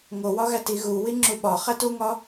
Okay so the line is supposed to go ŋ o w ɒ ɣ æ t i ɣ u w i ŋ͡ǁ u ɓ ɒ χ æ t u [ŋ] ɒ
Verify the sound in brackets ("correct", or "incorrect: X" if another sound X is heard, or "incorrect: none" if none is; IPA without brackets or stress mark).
correct